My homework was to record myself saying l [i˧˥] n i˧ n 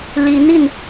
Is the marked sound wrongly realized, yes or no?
no